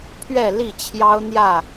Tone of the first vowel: falling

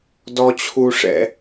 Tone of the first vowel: high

